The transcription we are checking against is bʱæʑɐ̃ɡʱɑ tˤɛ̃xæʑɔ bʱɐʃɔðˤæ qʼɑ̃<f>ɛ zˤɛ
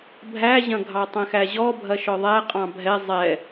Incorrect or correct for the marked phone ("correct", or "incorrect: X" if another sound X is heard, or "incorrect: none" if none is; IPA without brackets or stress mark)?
incorrect: bʱ